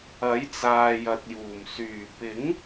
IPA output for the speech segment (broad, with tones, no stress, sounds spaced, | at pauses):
ɐ˨˥ j t͡s aː˨ j ɐ˨ t̚ j uː˨˩ m s yː˨˩ p ɪ˨˥ ŋ